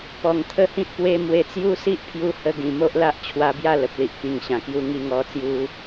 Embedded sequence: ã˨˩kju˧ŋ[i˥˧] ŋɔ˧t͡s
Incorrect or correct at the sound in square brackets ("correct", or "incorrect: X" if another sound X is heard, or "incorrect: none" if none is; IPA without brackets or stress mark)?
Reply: incorrect: i˧